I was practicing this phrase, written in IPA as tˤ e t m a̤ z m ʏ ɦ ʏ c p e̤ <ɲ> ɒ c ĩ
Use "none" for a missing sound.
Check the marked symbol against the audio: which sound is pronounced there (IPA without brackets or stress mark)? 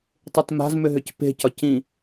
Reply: c